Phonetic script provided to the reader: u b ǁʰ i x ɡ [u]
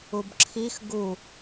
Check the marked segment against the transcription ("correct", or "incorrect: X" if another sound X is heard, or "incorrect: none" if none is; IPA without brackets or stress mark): correct